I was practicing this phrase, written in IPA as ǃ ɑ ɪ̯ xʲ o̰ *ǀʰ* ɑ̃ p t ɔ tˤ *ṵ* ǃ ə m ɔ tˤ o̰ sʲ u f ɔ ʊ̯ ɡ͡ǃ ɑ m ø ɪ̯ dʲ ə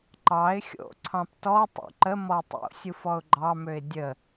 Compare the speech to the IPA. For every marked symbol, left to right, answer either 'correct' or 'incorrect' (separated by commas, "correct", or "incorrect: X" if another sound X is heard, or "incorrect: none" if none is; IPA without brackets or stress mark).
correct, correct